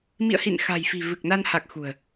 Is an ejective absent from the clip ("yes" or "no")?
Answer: yes